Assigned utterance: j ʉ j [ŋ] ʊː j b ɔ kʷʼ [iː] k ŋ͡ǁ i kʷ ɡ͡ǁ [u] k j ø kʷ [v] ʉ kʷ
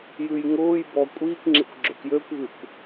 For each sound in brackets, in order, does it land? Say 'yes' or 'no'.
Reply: yes, yes, no, no

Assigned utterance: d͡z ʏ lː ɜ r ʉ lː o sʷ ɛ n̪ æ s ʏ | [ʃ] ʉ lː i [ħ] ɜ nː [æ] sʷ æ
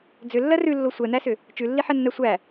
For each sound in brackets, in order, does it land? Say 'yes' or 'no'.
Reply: no, yes, yes

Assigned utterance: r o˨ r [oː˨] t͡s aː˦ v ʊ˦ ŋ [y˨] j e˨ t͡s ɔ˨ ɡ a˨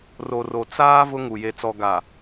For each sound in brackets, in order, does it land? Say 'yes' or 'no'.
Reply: no, no

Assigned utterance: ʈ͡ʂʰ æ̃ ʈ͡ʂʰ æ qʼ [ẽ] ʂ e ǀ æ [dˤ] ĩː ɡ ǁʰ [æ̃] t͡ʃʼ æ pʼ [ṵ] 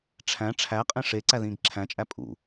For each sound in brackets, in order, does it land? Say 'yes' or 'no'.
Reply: yes, no, yes, yes

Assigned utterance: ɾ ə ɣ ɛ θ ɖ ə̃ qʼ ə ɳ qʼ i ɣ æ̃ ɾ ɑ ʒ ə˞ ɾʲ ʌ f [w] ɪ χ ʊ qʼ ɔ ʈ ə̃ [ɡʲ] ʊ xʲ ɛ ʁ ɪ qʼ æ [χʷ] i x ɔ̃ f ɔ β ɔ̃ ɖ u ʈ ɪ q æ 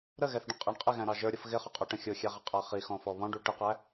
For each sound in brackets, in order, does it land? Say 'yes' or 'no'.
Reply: no, no, no

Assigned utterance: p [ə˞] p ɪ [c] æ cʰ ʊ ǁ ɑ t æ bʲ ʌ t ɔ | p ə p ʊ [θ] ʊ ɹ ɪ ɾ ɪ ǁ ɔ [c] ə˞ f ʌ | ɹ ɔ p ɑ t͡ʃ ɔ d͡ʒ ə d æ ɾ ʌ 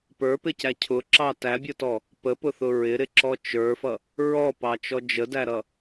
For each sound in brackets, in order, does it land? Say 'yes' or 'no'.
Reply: yes, yes, yes, no

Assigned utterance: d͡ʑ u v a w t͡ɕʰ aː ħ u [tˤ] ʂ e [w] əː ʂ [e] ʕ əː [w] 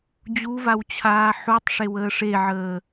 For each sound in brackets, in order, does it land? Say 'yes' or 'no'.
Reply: yes, yes, yes, no

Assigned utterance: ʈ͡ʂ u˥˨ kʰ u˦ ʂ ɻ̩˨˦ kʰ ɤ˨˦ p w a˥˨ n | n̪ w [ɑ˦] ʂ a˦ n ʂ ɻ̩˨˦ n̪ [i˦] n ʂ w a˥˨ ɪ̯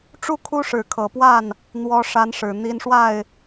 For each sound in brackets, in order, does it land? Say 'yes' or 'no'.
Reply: no, yes

